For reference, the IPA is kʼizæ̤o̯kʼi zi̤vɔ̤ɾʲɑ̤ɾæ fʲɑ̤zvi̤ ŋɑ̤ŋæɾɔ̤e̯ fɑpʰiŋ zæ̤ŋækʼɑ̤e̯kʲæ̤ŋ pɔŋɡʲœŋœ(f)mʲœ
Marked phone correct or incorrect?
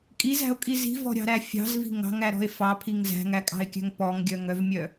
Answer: incorrect